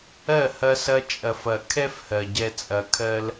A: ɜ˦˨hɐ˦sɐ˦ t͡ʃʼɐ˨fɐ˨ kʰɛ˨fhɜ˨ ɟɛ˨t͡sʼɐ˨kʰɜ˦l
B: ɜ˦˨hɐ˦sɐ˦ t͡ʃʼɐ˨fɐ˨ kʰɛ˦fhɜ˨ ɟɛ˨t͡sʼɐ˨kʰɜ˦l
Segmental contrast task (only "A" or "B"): B